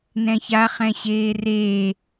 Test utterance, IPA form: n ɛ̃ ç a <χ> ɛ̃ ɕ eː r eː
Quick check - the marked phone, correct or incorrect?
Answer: correct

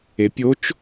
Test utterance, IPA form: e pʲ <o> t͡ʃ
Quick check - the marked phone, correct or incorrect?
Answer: correct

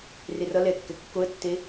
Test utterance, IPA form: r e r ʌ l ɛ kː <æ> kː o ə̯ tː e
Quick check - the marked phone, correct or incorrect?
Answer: incorrect: ɛ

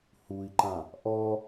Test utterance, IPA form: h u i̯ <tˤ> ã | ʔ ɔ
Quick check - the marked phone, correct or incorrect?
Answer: incorrect: ǃ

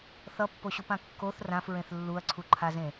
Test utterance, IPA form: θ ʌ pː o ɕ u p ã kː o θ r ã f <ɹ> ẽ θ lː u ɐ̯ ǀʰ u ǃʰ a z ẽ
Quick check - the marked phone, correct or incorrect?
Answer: correct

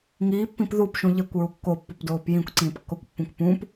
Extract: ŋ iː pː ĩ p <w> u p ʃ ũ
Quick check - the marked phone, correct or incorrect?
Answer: incorrect: ð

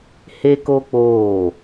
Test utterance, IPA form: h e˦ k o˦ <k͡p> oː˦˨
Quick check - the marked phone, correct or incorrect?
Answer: correct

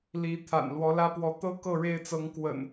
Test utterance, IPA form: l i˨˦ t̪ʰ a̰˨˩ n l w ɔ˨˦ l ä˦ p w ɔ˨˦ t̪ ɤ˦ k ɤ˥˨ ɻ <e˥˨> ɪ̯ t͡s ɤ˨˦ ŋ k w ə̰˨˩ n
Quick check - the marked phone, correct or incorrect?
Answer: correct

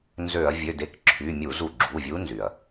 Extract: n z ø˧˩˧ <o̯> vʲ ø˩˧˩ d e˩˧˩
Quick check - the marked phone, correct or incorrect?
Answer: incorrect: ɐ̯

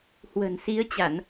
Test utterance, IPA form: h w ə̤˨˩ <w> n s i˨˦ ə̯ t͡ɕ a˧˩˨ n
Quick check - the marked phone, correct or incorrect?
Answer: incorrect: none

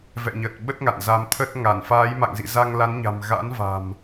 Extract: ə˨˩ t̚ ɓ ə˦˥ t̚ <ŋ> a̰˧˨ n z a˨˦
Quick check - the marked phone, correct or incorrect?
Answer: correct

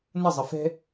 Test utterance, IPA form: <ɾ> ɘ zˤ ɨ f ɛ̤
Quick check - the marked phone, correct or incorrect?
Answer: incorrect: n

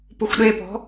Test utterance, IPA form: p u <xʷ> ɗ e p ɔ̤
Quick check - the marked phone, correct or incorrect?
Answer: correct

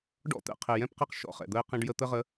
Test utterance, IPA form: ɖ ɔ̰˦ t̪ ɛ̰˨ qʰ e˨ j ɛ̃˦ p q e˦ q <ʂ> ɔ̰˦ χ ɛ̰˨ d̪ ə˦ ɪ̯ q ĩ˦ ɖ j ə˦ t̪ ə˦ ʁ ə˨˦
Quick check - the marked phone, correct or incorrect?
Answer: incorrect: ʃ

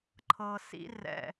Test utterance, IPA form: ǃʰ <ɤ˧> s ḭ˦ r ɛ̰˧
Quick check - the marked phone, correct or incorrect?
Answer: correct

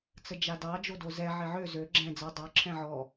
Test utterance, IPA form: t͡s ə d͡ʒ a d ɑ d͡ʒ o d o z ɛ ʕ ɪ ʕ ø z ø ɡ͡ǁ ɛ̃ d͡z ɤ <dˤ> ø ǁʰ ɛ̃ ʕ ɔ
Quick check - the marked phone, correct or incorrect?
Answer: correct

